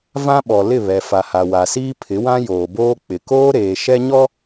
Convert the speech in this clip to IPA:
v ã˦ ɓ ɔ˨ l ɪ˦˨ β ɛ˨ f a˨ h a˨ w a˨ s iː˦ pʰ ɪ˨˦ w ã˦ j oː˨ b oː˦ k͡p ɪ˨ k oː˦ ɾ eː˨ ʃ ɛ˦ ɲ ɔ˦

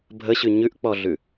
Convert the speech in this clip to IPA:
bʱ ə ɕ ʉ ɲ ʉ ʔ k͡p ɔ ɮ ʉ

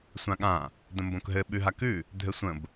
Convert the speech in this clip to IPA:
sʷ ã ɠ ã | d ə̃ m b õ k ɦ ɘ ɓ ʉ ɦ a k ʉ | dʱ ɘ sʷ ə̃ b

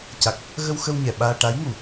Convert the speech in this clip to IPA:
c a˨˩ k̚ | ɣ ə˧ w x ə˧ w ɲ ɛ˨˩ ɓ aː˧ ʈ a˧˥ j ŋ u˨˩˨

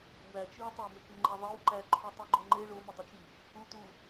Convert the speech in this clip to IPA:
w æ t͡ʃ i w tˤ æ m e k ŋ͡ǃ e ðˤ e w ǃ æ ǃʰ u tˤ i ɡ͡ǃ o ŋ͡ǃ e ɭ o m i dˤ u t͡ʃ i | u t u

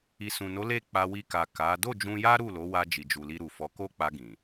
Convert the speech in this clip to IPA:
i˨ s ũ˨ n o˨˦ l e˦˨ k͡p a˧ w i˧ k a˨ k a˨˦ d o˦˨ d͡ʒ ũ˧ j a˦ ɾ u˦˨ l o˨˦ w a˧ d͡ʒ i˨ d͡ʒ u˨ l i˧ ɾ u˨ f ɔ˨˦ k o˦ k͡p a˧ ɡ ĩ˨

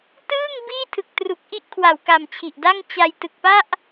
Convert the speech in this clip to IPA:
t ɯː˥˩ ŋ b iː˥˩ tʰ ɯ˨˩ k̚ t r u˨˩ k̚ ʔ i˥˩ ʔ kʰ w a˨˩ w k a˨˩ m t͡ɕʰ i˨˩ ʔ d a˥˩ ŋ t͡ɕ a˧ j t ɯ˨˩ k̚ p a˥˩ ʔ

